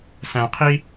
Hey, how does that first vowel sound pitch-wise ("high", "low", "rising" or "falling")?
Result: low